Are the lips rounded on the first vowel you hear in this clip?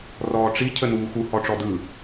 yes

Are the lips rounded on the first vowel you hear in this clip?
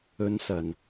yes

